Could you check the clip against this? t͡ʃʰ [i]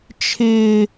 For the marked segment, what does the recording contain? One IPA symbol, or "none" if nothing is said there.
ɪ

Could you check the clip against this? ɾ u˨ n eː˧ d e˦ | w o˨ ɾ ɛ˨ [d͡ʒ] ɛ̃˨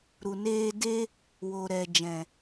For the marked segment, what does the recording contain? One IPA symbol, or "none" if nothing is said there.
d͡ʒ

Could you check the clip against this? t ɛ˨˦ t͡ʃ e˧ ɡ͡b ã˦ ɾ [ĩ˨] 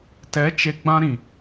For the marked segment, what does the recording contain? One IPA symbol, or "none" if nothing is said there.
ĩ˨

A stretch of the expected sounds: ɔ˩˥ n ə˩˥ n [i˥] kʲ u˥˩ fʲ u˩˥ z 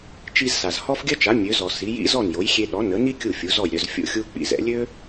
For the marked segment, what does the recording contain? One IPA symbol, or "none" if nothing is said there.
i˥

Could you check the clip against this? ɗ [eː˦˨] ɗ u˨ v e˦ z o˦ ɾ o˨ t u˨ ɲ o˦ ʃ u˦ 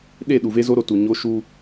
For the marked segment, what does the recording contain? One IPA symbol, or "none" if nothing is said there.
e˦˨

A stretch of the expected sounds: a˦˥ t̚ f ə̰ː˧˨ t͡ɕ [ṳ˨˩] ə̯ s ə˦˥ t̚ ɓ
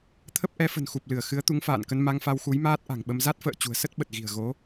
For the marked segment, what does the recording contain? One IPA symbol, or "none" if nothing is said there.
ṳ˨˩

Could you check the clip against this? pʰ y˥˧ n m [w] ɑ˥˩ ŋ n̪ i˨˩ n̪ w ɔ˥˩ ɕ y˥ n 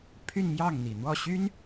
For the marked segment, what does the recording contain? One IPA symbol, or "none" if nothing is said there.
j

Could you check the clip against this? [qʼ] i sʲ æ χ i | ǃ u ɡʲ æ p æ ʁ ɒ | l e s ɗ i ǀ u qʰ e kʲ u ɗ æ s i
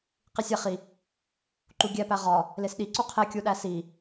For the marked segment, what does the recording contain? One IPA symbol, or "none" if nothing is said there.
q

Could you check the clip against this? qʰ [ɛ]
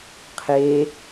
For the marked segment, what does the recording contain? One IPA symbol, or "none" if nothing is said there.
e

